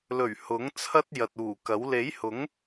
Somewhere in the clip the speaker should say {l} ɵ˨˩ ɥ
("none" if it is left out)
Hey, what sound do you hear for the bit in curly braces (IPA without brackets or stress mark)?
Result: l